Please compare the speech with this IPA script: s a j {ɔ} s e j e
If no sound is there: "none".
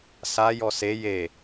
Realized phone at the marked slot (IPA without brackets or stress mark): ɔ